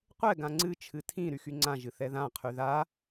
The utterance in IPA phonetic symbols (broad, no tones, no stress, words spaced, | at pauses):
qʷɛ ɡãŋ͡ǀɨ t͡ʃʰɨtʰĩ ɾyxyŋ͡ǀã ʒɨθɛðã qʰyða